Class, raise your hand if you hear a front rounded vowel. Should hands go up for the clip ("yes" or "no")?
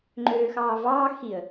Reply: yes